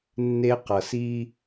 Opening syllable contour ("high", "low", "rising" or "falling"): high